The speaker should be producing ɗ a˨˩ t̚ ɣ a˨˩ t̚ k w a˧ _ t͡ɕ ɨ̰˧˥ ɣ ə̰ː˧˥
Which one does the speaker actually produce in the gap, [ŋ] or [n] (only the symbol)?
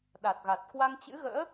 ŋ